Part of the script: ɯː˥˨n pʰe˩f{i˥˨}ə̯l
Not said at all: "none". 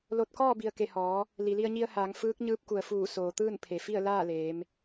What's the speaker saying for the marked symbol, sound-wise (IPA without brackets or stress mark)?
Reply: i˥˨